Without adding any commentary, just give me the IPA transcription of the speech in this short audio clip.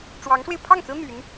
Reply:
ʈ͡ʂ w ɑ˧˥ ŋ ʂ w e˧ ɪ̯ pʰ ɑ˥˩ ŋ t͡s ɹ̩˥ n̪ y˧˥ n

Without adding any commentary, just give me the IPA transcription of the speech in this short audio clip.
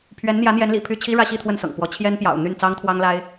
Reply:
pʰ ɥ ɛ˧˥ n n̪ j ä˧˥ n̪ j ɛ˧˥ n l ḭ˨˩ pʰ y˥˩ t͡ɕʰ i˥ ɻ ä˥ ɕ i˥˧ t̪ʰ w ə˥˩ n s ɤ̰˨˩ ŋ p w ɔ˧˥ t͡ɕʰ j ɛ˥ n p j ɑ̰˨˩ ʊ̯ n̪ y˥˩ n t͡s ɑ˥ ŋ t̪ʰ w ɑ˥ ŋ l a˥ ɪ̯

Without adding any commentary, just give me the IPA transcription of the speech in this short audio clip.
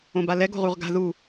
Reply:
õ b a l ɛ ɡ o̤ ʁ u ʁ ɡ a̤ ð u

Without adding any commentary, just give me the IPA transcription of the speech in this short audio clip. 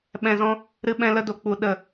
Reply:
ɓ ɛ̃˨ z ɔ̃˧ | ɾ ɨ˧ ɓ ɛ̃˧ l ə˧ d o˨ k͡p u˨ ɗ ə˨

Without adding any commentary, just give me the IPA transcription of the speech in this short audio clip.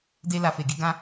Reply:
d e˧ l a˨ f e˨ ɡ i˧ ɡ ã˧

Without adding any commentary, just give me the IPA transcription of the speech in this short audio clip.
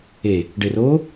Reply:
e | ɖ e r o

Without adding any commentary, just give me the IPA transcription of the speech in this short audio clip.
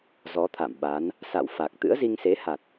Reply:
z ɔ˨˦ t̪ʰ a̰˧˨ m ɓ a˨˦ n | s a̰˧˨ w f a˨˩ k̚ t̪ ɨ̰˧˥ ə̯ z i˧ ŋ s e˨˦ h a˨˩ t̚

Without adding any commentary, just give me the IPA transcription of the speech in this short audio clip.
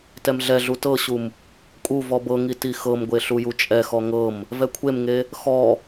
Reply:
t ɛ m ɮ ɛ ɮ u t ɤ ɕ u m | kʼ u v ɔ b ɤ ŋ i t i x ɤ m ɡʷ e ɬ u j u t͡ʃʼ ɛ x ɔ ŋ ɤ m | v ɛ kʷʰ e m ŋ e | x ɔ

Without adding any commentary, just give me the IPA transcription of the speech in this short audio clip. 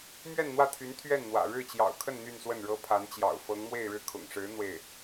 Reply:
m ɥ ɛ˥˧ n n̪ w ä˥˩ t̪ʰ y˧˥ n t̪ʰ ɥ ɛ˥˩ n n̪ w ä̰˨˩ ɻ ɻ̩˥˩ t͡ɕ j ɑ̰˨˩ ʊ̯ kʰ ə˥˧ n n̪ y˥˧ n s w ə˥˩ n ɻ ɤ˥ pʰ a˧˥ n t͡ɕ j ɑ̰˨˩ ʊ̯ f ɤ˧˥ ŋ m w e˥˧ ɪ̯ ɻ ɻ̩˥˩ kʰ ʊ̰˨˩ ŋ ʂ ɻ̩˧˥ n̪ w e˥˩ ɪ̯

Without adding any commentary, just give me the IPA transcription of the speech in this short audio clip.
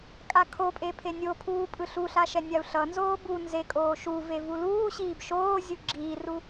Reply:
kʼ a kʰ o pʼ e pʰ e nʲ o pʰ uː pʼ ɯ ɬ u ɬ a ʃ ɛ nʲ a u̯ ɬ ʌ n z oː b u n z e kʼ oː ʃ u v e v u l uː ɕ iː b ʃ oː zʲ u ɡ͡ǁ iː r u

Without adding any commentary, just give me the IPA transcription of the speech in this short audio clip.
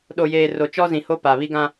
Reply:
ɗ o˨ j eː˨ r o˨ t͡ʃ ɔ˦ z ĩ˨ h o˦ p a˨ β i˦ ɡ ã˦

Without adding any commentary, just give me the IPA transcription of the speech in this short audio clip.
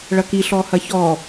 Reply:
ɭ ɐ k i ɬ ɔ h ɐ ç ɔ

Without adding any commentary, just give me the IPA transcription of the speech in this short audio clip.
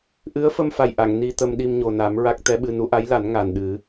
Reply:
ʔ ɨ˧˥ ə̯ f ə˧ m f a˨˩ j ʔ a˨˩˨ ŋ n i˧ t̪ ə˧ m ɗ i˧ m ɲ o˨˩ n a˨˩˦ m ɹ a˦˥ k̚ t̪ ɛ˧˥ ɓ ɨ˧ n u˧˥ ʔ a˧˥ j l a˨˩˦ n ŋ a˨˩ n ɗ ɨ˨˩˦

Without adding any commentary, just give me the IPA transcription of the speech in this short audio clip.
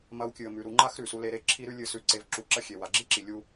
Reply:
m ɐ˦ w kʲ ɨ˧ ə̯ m ʉ˧ ɾ u˧ ŋ͡ǃ a˦ x ɾ ʉ˨ s u˦ l e˦ ɾ e˦ ǁʰ i˦ ɾ ʉ˦ lʲ ɨ˧ s ʉ˧ ǀ e˧ v ǁ u˧ ǁ ɐ˦ xʲ e˧ w a˨ ɡ͡ǁ i˦ ǁ i˨ lʲ u˧

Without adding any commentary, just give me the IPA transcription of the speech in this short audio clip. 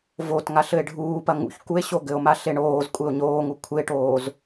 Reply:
v o t ŋ a ɬ ɘ e̯ ɖʱ uː p ɐ ŋ ṵ ç k u e̯ ɕ o ɡ ɘ o̯ m a ɬ e ɳ oː z kʷʼ e o̯ ɲ oː ŋ u kʷʰ e ʈ oː z

